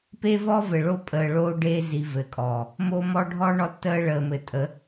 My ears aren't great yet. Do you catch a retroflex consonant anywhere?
yes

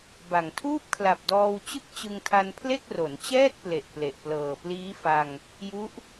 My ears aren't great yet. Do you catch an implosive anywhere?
no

